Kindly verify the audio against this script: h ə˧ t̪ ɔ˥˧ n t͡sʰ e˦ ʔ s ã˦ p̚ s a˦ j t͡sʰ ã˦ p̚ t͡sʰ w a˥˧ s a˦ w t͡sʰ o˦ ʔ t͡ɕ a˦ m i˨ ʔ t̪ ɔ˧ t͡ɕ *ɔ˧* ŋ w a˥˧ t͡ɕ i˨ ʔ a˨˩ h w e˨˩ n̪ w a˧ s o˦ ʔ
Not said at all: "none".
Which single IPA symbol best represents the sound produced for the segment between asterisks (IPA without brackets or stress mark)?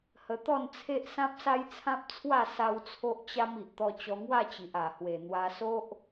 ɔ˧